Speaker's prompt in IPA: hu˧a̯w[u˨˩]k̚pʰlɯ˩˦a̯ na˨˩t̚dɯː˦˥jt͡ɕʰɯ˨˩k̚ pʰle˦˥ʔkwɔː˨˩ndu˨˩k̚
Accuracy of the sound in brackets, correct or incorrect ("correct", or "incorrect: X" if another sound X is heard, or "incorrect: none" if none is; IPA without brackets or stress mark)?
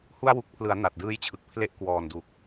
correct